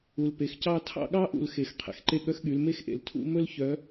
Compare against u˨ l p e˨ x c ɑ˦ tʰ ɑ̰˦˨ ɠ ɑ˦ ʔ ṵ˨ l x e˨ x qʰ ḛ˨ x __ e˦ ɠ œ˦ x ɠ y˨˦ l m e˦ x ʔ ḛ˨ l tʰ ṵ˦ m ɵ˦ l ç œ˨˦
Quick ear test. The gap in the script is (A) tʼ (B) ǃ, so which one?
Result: B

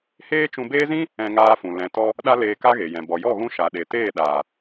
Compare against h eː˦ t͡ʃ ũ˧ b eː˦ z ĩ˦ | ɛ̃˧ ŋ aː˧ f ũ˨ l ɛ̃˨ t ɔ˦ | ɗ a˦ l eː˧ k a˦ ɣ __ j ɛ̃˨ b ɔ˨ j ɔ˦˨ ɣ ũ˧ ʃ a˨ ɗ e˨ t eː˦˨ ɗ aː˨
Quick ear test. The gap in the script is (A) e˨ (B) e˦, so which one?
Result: A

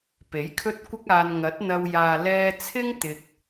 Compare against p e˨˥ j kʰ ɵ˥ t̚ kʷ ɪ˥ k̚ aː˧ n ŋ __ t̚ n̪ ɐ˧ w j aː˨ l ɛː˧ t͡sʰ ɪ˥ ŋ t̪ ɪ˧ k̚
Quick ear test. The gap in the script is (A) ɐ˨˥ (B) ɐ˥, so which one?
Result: A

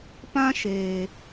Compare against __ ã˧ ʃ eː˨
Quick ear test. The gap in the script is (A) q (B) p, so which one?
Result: B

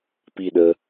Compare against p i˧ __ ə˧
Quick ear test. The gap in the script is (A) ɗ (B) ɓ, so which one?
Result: A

